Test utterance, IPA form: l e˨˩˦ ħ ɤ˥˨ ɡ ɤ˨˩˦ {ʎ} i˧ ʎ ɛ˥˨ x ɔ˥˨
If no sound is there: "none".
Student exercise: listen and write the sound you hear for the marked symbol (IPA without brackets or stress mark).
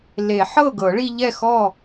ɭ